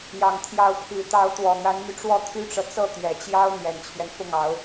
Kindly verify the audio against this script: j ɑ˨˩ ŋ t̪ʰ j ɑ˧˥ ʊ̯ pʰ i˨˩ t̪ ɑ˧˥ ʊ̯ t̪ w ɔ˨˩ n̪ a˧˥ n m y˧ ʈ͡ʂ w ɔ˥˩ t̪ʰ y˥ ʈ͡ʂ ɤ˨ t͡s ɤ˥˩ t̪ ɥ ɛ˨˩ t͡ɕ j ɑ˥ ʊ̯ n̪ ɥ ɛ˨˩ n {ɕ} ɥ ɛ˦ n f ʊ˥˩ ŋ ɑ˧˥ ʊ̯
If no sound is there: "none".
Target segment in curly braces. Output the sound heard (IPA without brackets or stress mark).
t͡ɕʰ